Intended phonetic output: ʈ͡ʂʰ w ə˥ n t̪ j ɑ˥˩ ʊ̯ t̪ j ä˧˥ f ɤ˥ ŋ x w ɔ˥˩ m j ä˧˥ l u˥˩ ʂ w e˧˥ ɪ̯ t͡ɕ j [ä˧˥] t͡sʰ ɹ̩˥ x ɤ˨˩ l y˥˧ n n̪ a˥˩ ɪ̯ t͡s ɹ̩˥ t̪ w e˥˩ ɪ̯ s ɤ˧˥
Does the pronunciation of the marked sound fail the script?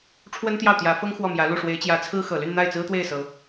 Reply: no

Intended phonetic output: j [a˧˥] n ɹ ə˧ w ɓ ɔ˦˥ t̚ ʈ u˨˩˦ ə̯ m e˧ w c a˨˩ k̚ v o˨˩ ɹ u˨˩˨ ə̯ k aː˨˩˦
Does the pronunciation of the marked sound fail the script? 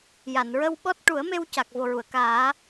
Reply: yes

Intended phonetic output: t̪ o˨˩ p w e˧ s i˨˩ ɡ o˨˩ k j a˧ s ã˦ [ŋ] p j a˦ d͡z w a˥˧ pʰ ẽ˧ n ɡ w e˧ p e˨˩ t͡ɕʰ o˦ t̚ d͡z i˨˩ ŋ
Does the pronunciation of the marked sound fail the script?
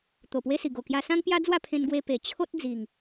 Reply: no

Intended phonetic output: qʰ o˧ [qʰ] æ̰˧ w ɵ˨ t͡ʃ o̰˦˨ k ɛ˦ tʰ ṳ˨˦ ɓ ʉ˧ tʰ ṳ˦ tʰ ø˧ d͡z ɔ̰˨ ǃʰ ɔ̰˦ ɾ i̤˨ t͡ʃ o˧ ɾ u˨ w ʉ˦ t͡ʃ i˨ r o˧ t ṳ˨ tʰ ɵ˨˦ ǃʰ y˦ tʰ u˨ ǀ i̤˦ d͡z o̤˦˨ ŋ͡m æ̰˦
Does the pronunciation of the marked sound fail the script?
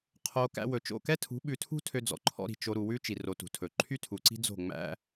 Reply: yes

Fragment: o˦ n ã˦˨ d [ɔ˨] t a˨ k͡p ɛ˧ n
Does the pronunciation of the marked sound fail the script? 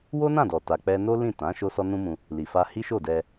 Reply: no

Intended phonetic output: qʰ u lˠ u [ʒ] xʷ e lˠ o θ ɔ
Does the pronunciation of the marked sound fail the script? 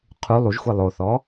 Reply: no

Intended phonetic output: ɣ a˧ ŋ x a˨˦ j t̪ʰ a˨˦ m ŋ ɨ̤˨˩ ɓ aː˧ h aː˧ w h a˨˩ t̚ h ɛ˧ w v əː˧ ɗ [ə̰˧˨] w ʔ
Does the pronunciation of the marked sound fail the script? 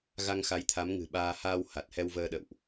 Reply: no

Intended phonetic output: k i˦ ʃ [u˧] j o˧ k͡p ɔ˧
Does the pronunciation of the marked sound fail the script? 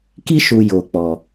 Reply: no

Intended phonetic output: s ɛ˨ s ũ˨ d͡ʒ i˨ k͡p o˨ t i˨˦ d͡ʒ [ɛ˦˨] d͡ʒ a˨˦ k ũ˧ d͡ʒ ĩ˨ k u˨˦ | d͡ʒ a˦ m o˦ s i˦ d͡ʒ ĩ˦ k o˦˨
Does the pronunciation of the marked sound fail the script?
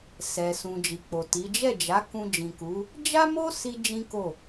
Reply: no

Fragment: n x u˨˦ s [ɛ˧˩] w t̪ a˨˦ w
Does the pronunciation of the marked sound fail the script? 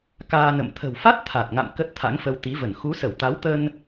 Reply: yes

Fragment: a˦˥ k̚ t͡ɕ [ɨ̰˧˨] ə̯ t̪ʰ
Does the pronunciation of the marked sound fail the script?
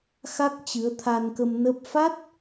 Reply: yes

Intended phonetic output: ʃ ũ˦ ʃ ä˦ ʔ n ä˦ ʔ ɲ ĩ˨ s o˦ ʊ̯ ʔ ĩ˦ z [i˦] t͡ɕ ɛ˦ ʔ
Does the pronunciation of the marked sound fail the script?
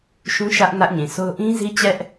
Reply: no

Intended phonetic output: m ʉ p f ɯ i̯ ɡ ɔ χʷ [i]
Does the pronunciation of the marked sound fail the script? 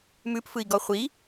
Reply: no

